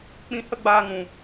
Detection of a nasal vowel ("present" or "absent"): present